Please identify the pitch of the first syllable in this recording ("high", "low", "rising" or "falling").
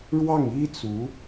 falling